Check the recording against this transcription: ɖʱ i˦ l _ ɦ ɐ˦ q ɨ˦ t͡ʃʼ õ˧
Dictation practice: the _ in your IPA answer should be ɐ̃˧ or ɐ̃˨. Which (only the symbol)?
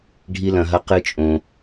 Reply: ɐ̃˧